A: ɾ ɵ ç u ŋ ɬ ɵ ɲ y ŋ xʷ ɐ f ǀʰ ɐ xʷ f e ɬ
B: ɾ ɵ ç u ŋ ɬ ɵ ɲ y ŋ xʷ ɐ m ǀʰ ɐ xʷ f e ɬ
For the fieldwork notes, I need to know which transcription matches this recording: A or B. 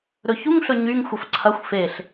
A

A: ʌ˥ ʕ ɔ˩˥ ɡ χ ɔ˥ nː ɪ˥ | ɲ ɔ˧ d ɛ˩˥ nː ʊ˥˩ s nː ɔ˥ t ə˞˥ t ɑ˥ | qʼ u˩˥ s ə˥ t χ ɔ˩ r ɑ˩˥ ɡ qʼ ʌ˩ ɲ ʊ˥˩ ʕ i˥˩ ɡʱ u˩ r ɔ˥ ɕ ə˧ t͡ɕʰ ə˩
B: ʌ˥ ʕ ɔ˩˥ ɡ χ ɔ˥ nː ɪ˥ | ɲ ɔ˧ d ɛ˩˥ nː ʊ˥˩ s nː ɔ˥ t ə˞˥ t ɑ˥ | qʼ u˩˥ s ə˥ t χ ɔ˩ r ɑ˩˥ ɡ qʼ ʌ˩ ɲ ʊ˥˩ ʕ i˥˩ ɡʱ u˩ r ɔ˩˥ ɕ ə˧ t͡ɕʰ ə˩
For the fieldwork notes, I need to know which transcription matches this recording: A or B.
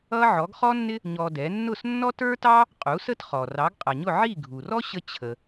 A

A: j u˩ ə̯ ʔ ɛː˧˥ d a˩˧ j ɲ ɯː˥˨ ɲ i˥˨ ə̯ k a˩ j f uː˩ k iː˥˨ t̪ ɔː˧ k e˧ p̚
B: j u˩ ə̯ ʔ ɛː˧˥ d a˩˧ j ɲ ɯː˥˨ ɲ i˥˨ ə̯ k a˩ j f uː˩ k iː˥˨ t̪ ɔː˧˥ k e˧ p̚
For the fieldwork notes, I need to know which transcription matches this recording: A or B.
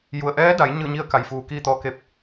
A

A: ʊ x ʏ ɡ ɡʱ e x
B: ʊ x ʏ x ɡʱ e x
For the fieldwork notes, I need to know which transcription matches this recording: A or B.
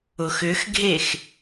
B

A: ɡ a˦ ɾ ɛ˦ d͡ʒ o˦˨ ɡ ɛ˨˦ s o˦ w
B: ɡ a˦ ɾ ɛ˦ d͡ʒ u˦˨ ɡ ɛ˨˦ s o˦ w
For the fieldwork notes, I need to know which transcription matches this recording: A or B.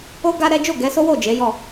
A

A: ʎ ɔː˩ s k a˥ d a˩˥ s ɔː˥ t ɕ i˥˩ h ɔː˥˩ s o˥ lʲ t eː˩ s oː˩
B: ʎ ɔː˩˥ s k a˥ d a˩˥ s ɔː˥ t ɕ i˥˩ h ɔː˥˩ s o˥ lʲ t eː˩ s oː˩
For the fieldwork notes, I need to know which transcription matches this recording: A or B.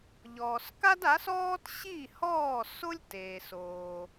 A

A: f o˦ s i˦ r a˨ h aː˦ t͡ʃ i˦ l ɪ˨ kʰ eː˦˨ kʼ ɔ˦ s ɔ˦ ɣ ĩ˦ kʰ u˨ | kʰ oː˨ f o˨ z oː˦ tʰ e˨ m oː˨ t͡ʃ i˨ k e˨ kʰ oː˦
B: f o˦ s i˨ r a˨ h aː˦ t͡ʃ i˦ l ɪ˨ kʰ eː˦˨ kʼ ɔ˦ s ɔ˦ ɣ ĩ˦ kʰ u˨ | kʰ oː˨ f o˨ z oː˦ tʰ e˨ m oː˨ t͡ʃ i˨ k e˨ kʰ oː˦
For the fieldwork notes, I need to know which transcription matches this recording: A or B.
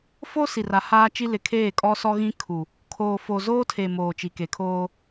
B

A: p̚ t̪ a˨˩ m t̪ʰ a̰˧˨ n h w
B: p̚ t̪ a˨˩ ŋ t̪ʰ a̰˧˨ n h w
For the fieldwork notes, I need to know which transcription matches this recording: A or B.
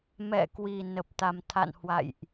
A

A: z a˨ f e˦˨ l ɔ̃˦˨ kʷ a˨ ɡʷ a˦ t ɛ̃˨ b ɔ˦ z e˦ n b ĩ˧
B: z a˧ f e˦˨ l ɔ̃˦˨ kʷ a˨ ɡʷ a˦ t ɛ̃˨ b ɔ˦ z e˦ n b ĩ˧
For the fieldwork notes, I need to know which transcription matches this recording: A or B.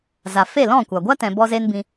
A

